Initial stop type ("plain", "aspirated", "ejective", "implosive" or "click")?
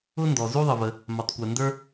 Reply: plain